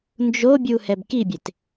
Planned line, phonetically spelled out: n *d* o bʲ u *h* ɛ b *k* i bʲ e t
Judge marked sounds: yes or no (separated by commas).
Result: no, yes, yes